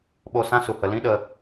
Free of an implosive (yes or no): no